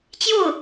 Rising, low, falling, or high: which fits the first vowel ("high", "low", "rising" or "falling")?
falling